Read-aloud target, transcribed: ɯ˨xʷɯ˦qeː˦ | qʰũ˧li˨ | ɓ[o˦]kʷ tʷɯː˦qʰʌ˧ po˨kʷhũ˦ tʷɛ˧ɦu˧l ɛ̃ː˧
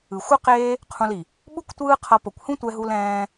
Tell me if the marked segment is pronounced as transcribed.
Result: no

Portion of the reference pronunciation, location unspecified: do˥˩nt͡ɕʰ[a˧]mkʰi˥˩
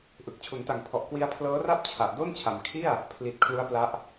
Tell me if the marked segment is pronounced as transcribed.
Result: no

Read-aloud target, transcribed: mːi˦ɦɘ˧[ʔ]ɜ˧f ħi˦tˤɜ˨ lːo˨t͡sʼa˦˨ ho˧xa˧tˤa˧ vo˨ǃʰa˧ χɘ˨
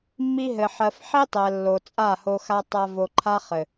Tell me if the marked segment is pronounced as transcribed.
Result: no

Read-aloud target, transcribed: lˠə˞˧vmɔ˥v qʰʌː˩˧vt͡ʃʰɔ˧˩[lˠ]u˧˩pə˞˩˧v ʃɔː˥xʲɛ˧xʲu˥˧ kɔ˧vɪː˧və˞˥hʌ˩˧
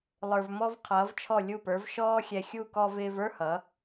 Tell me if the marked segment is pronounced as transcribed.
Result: no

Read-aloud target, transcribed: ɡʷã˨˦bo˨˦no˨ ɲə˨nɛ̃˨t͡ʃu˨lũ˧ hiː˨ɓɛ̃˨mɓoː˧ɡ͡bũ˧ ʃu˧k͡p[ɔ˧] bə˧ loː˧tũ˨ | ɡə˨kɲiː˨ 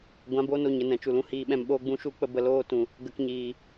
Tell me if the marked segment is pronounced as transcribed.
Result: no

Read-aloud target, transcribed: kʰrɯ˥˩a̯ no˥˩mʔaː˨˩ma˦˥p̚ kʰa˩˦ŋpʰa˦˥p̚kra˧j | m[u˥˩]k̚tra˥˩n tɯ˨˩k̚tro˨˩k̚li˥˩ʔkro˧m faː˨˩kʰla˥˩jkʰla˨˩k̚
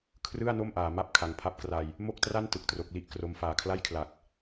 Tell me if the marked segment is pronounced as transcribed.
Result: no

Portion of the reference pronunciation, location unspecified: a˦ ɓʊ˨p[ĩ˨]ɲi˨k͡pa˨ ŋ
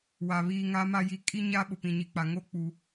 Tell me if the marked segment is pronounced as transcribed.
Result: yes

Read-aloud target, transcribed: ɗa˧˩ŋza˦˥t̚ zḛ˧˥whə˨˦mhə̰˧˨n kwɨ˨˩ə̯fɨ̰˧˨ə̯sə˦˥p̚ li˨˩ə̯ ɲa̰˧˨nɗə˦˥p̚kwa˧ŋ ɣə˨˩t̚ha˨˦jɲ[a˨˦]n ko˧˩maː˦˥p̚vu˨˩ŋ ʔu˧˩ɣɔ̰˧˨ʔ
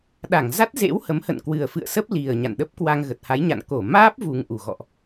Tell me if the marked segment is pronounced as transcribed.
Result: no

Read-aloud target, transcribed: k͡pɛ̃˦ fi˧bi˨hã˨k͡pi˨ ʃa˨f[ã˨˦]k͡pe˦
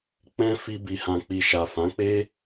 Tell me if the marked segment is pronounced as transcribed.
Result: yes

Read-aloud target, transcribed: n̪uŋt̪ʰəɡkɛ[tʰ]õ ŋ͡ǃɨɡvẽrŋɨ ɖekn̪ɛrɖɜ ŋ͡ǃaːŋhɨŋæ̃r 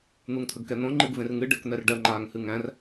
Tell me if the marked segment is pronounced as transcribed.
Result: no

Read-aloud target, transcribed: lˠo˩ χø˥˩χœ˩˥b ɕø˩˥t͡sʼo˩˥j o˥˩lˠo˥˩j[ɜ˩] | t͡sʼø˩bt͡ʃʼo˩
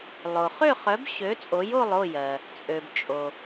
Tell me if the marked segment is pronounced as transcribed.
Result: yes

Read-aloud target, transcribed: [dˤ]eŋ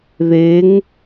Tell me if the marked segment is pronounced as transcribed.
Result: no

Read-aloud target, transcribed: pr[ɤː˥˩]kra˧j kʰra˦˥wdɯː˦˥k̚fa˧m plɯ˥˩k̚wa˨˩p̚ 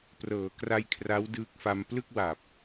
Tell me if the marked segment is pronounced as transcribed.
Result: no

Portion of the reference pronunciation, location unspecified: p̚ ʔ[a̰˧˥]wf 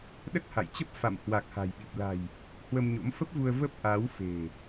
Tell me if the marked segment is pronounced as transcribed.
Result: no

